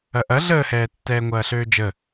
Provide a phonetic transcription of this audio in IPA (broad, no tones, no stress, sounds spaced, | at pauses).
ɐ ʔ ɐ ɮ əː h ɛː tː ɛː ŋʷ ɐː ɬ øː d͡ʒ ə